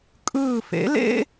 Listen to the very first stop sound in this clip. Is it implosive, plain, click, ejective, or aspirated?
ejective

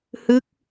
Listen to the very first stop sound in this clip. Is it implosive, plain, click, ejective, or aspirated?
plain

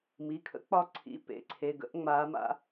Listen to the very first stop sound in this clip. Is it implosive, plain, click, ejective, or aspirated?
aspirated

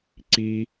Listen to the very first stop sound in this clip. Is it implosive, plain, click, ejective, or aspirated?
click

